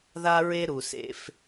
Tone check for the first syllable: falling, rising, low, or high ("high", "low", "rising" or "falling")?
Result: high